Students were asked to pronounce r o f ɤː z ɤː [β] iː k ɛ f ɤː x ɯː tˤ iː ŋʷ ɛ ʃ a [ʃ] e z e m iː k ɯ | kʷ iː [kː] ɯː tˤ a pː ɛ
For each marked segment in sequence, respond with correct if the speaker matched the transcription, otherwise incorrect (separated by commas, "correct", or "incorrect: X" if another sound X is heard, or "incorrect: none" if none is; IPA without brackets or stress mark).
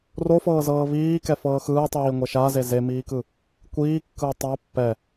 correct, incorrect: z, correct